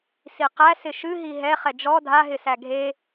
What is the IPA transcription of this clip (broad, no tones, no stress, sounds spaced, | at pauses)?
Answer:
s i q æ s ɪ ʃ ɨ ɦ i ɦ ɛ χ ɛ d͡ʒ ɔ dʱ a ɦ ɪ s æ ɡʱ e